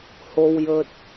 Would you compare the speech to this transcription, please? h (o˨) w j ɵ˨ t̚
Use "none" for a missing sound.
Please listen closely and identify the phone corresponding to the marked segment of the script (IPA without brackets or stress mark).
o˨